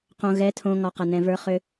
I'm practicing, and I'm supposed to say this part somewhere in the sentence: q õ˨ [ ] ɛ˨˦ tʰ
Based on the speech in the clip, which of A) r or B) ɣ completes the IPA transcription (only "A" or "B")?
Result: B